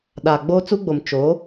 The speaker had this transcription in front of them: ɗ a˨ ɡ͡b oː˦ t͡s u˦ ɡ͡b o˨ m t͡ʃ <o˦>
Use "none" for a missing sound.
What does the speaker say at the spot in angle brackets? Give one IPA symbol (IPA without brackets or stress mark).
o˨˦